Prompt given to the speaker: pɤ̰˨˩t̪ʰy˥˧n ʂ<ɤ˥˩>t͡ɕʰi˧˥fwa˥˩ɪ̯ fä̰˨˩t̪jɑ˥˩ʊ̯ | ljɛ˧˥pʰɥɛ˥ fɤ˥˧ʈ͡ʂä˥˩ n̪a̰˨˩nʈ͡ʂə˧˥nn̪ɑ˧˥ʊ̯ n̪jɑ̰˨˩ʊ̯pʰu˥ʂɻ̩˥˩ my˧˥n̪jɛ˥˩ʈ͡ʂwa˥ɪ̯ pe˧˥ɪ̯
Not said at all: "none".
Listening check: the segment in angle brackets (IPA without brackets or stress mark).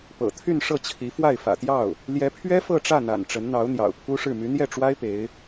ɤ˥˩